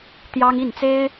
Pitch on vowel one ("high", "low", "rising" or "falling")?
high